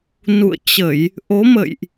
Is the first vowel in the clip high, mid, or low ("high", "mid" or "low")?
high